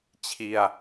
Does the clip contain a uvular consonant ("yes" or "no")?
no